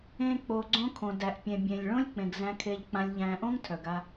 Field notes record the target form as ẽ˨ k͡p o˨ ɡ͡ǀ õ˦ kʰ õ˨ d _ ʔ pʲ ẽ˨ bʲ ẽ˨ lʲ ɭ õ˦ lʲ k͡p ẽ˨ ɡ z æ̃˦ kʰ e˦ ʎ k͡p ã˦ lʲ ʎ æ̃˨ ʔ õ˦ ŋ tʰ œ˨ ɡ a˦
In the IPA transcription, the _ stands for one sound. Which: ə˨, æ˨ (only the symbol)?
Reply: æ˨